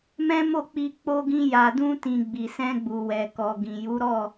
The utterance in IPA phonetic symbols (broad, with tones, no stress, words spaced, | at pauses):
mɛ̃˦mo˦˨k͡pi˧ k͡po˧ɡĩ˧ ja˨dũ˧tĩ˨ ɡ͡bi˨sɛ̃˧ɡ͡bu˨wɛ˨ kɔ˨ɡĩ˨ju˨˦ ɾɔ˦˨